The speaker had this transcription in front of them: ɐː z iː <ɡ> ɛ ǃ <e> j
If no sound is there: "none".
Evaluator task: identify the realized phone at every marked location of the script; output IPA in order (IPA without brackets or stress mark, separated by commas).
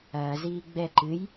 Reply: ɡ͡b, ɨ